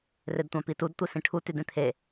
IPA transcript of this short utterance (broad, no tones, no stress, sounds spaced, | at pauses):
r e d tʷ ɑ̃ p i t u d tʷ i s ĩ ʈʰ u t y d ẽ t̪ʰ e